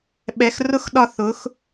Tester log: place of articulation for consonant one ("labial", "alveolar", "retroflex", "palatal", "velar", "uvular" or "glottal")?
labial